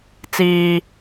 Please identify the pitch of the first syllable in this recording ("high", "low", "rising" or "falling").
low